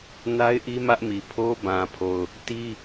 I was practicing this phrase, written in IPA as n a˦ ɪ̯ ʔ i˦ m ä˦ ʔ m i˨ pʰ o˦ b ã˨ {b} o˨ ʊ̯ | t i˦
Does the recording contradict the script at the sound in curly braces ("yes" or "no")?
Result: yes